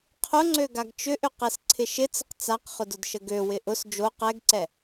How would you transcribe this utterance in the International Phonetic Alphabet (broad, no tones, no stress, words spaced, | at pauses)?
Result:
qʰʊŋ͡ǀøɡaɡ t͡ʃʏʔʏ qɛsǀʰɪʃɪt͡səq t͡saqχʊdʊdʃə ɡøwɪ ʔʊs d͡ʒo qɛɡǀɛ